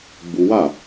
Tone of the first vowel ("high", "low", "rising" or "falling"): high